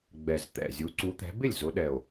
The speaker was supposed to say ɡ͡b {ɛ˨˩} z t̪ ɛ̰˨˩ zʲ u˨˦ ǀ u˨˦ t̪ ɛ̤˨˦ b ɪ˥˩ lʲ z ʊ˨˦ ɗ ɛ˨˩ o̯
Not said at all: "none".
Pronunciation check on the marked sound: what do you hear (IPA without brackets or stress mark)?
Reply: ɛ˨˩